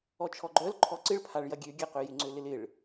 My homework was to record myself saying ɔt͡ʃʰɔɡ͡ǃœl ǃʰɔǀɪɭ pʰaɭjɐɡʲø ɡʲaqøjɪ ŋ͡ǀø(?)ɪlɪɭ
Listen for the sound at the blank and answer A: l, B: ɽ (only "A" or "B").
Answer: A